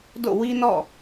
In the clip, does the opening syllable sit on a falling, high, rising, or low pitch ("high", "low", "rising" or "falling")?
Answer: falling